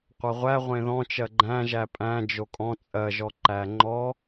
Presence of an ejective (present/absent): present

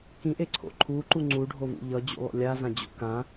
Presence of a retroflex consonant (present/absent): present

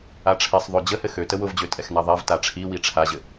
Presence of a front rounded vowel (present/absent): present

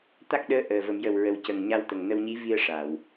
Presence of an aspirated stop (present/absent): absent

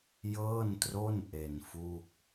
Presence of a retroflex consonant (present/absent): absent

